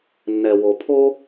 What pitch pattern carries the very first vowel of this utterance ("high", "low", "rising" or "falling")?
low